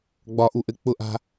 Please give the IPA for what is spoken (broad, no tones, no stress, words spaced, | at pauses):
ɡ͡bɒʔuʔɘ k͡pʊʔa̤